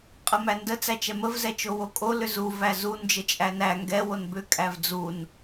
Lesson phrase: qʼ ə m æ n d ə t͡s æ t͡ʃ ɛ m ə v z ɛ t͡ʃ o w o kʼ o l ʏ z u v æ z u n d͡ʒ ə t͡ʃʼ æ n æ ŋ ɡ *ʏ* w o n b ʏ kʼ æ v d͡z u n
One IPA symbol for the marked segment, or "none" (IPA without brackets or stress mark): ɛ